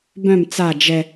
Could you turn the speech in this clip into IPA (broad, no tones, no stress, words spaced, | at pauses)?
bœ̃m t͡sa d͡ʒɛ